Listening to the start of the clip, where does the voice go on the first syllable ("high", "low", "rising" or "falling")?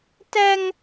high